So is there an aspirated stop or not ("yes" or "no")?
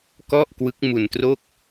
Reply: no